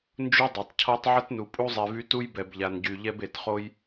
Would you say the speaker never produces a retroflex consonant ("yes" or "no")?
yes